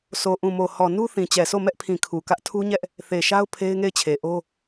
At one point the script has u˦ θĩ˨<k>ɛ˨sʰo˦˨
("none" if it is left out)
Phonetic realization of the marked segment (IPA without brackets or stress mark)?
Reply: t͡ɕ